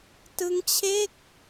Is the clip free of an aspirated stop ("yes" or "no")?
no